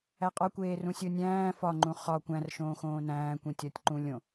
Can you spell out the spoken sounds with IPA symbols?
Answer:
æ qʼ ɒ kʷ eː r ũ sʲ o nʲ æ̃ː f ɒ ŋ͡ǃ ũ χ ɒ kʷ æ̃ r ʃ õː x õː n æ̃ː kʷ ĩ tʲ ɒ tʲ ǃ ũ lʲ õ

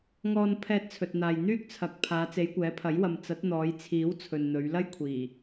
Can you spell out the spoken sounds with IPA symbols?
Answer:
ŋ ɔː˧ n pʰ ɛː˧ t̚ t͡sʰ ɵ˨ t̚ n̪ aː˨ j n̪ yː˥ k̚ t͡sʰ ɐ˨˥ k̚ pʰ aː˨˧ t͡s e˨˧ j kʷ ɛː˨˥ pʰ ɐ˨˥ j w ɐ˨ m t͡s ɐ˨˥ t̚ n̪ ɔː˨˧ j t͡sʰ iː˨˥ w t͡sʰ ɵ˨ n n̪ ɵ˨˧ ɥ l ɐ˥ j kʷʰ iː˨˩

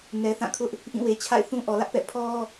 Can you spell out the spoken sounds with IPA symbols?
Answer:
n ɛ˨ θ ã˦˨ kʰ ʊ˦ ʔ | ʔ ĩ˦˨ w e˨ t͡ɕʰ a̰˦˨ ɪ̯ θ ũ˦ ʔ ɔ˨ l ä˦ ʔ p ɛ̰˦˨ pʰ ɔ˦

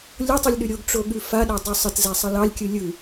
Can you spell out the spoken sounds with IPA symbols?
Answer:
lʲ o tˤ ʉ lʲ ɗ ʉ ɾʲ o ɡ ʈ͡ʂ o ɠ ʉ f a ɗ ɛ dˤ ʉ sˤ ə t z ɛ sˤ ə l ɑ lʲ kʲ ɯ lʲ ɯ

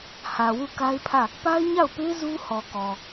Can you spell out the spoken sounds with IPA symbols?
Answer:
h ä˨ w u˦˨ k a˦ ɪ̯ pʰ ä˦˨ | p a˦ ɪ̯ ɲ a˦˨ ʊ̯ p e˦ z u˦ h ɔ˨ k ɔ˨

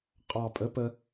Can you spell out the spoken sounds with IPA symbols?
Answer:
qʼ ɑ˨˩ pʼ ə˨˥ p ə˧

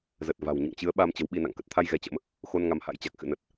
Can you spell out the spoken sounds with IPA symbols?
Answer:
z ə˨˩ t̚ v a̤˨˩ w ɲ ɨ̰˧˨ ŋ t͡ɕ ɨ˨˦ ə̯ ɓ a˧ m t͡ɕ ə˨˦ w ɓ i˧ n a̰˧˨ ŋ k ə˨˩ t̚ t̪ʰ a˧ j ɣ ɛ˨˦ t͡ɕ ə̰˧˥ m | x o˧ n ŋ a˨˦ m h a̰˧˥ j t͡ɕ a˨˩ k̚ x ɨ̰˧˨ n ə˨˩ t̚

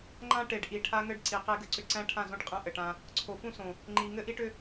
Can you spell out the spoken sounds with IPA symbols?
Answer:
ŋ͡ǃ ã˦ ʈ e˨ ɖ ʔ i˨ ʈʰ a˦ ŋ ɘ˦ ɖ ǀ i˨ q e˦ ɡ ɘ˦ ǀ ʏ˦ ǀ æ̃˦˨ ʈʰ ã˦˨ z õ˦ ʈ qʼ æ̃˦ ʔ ɘ˨ ʈ ã˦ | ǀʰ o˨ f ũ˦ s õ˨ | ŋ͡ǃ i˨ ŋ ɘ˦ ʔ i˦ ʈ ʏ˦

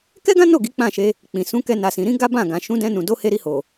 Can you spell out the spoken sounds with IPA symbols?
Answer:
k ɛ˦ ɡ ã˦ n o˦˨ ɡ i˨˦ k͡p ã˦˨ ʃ e˧ | k͡p ĩ˨ s ũ˨˦ k ɛ˧ n a˨ s ĩ˨ ɾ ĩ˨˦ ɡ a˦ b ã˦˨ ɡ ã˨ ʃ ũ˨˦ d ɛ̃˧ n ũ˨ d o˨˦ h e˧ ɾ i˧ h o˨

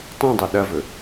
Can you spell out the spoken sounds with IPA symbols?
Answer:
tˤ ũ dˤ ɨ ɗ ɐ v ɵ

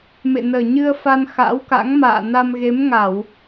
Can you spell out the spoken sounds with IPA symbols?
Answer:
m ḛ˧˨ n əː˨˩ ɲ ɨ˧ ə̯ f a˧ n x a̰˧˥ w k a̰˧˥ ŋ m a̰ː˧˨ n a˧ m ɣ e˨˦ m ŋ a˧˩˨ w

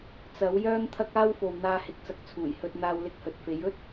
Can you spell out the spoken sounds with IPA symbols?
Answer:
t͡s ɐ˨˥ w j œː˥ ŋ t̪ʰ ɐ˥ k̚ aː˥ w f o˨ w n̪ aː˧ h ɪ˨˥ k̚ t͡s ɐ˨˥ k̚ t͡sʰ uː˨˩ j h ɵ˧ t̚ n̪ aː˧ w l ɪ˧ k̚ h ɵ˨ t̚ f e˨˥ j ɵ˥ t̚

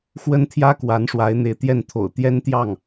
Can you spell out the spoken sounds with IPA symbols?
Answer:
x w ə˥ n t̪ʰ j ä˥ k w a˧˥ n ʂ w a˧˥ ɪ̯ n̪ e˧˥ ɪ̯ t̪ j ɛ˥˩ n t̪ʰ o̰˨˩ ʊ̯ t̪ j ɛ˥ n t̪ j ɑ˥˩ ŋ

